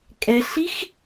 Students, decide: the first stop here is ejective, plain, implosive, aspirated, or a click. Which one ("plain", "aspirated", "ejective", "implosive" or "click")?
ejective